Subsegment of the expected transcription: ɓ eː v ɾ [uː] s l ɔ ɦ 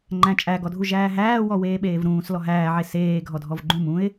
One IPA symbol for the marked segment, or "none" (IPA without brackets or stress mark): ũː